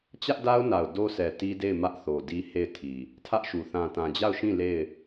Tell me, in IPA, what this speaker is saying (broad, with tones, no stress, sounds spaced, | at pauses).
t͡ɕ ä˦ ʔ d a˦ ʊ̯ n a˨ ʊ̯ d o˦ s ɛ˨ t i˦ d e˦˨ ɪ̯ m ä˦ ʔ θ o˨ d i˦ h e˦˨ ɪ̯ tʰ i˨ | tʰ ä˦ ʔ ʃ u˨ θ ã˨ t ã˨ d͡ʑ a˦˨ ʊ̯ ʃ ĩ˦˨ l e˦˨ ɪ̯